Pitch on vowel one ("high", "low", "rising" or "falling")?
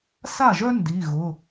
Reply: falling